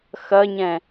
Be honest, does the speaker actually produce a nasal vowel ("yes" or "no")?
yes